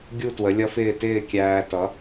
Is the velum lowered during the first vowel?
no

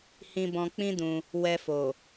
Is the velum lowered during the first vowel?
yes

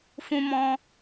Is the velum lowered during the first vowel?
yes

